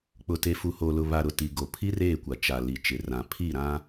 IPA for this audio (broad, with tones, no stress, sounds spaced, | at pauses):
k͡p ʊ˨ t e˨ f u˨ h oː˨ l ʊ˨ β a˨ ɾ ʊ˨ t i˨ ɡ o˨ pʰ i˦ r eː˦˨ kʷ a˨ t͡ʃ a˨ l i˨ t͡ʃ ɪ˨ r ã˨ pʰ i˦˨ ɾ ã˦